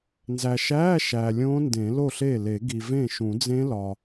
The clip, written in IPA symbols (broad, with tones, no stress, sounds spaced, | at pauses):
n z æ˨ ʃ æː˧˥˧ ʃ æː˨ lʲ õː˦˥ n d ẽ˨˩˦ l o˥˩ ɬ e˥˩ l e˨˩˦ ɡ i˨ v ẽ˥˩ ʃ ũ˨˩˦ d͡z ẽ˦˥ l ɒ˨